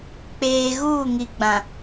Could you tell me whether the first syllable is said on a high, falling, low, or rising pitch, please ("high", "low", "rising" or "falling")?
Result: low